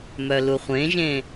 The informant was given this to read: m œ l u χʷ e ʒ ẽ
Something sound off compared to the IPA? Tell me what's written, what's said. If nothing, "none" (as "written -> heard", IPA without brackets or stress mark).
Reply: e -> ẽ